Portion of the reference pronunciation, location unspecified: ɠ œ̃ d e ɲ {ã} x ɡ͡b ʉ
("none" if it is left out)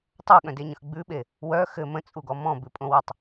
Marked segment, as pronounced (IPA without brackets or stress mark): ə̃